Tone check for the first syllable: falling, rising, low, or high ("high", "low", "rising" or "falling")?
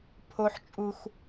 high